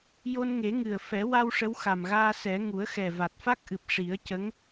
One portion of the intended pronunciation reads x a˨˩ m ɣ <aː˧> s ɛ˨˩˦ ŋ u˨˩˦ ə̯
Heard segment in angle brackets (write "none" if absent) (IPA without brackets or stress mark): aː˧